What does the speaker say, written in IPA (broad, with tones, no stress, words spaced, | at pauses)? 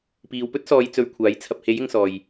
piː˨˧w pɵ˥t̚sɔː˨˧j t͡sɵ˧ɥkʷʰaː˨˥j t͡sʰɐ˨p̚he˨˥j ɪ˨˧ŋsɔː˨j